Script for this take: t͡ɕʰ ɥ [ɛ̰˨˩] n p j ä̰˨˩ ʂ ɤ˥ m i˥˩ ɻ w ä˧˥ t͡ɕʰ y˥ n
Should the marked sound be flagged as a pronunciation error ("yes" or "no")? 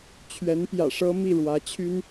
yes